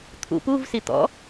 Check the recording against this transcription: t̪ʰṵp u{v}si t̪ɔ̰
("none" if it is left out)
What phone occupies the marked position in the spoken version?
v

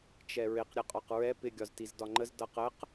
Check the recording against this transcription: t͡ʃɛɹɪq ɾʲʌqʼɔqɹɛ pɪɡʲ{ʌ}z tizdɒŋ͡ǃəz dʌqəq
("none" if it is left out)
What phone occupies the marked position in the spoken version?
ɒ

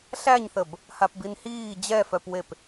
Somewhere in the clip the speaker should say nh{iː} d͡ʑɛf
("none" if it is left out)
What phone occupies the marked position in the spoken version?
iː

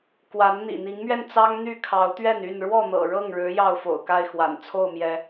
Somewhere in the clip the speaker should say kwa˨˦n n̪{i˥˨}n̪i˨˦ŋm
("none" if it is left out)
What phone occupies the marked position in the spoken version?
ḭ˨˩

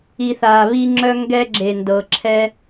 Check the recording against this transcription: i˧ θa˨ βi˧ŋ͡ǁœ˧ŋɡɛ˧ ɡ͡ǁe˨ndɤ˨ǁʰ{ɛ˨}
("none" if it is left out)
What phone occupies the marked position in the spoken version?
ɛ˦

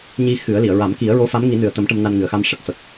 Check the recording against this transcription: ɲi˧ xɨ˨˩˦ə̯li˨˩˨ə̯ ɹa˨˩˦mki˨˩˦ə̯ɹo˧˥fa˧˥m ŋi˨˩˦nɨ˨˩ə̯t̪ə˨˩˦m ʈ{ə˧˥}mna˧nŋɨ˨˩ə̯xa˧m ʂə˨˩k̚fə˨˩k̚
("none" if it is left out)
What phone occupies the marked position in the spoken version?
ə˧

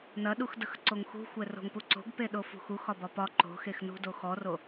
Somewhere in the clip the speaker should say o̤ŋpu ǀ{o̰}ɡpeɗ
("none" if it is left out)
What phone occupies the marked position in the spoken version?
o̤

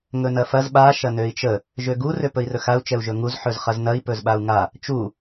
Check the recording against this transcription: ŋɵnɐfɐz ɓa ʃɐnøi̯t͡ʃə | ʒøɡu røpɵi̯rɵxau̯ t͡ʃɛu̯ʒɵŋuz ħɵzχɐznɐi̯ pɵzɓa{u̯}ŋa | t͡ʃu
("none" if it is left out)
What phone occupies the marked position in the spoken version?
u̯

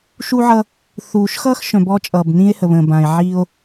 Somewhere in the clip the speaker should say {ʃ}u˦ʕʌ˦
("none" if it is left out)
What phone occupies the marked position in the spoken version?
ʃ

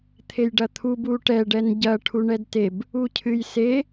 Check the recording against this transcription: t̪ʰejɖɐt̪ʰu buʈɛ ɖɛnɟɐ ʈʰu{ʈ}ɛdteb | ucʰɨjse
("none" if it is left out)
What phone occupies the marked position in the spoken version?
ɳ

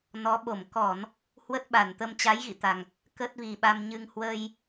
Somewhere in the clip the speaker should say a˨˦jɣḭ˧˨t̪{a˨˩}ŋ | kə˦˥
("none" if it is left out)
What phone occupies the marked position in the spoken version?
a˨˩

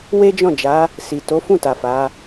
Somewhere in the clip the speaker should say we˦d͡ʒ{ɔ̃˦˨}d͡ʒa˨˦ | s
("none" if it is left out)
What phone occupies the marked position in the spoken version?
ɔ̃˦˨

